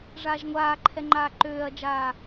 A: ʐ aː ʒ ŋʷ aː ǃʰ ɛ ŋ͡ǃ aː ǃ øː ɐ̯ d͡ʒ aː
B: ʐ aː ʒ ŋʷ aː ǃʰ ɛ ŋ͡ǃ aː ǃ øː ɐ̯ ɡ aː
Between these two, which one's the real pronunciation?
A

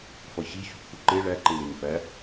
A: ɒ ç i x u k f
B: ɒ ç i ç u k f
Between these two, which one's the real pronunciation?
B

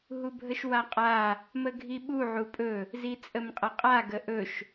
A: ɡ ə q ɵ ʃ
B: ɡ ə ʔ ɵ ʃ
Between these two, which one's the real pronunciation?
B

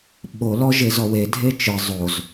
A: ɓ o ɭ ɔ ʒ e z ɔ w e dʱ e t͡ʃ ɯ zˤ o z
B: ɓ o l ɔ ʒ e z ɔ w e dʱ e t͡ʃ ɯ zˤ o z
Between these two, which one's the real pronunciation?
B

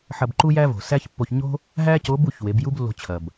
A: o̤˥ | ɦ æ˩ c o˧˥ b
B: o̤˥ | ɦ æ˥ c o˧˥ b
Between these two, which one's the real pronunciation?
B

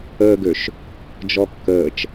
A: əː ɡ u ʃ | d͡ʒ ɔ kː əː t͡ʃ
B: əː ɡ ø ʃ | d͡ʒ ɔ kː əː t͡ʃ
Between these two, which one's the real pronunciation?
B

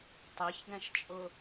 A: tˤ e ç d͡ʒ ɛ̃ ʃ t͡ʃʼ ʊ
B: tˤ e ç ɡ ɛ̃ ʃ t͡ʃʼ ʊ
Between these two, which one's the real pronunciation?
B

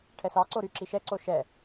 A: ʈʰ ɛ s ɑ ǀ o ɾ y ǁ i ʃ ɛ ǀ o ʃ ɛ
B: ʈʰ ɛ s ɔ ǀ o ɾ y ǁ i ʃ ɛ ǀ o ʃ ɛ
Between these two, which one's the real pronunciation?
A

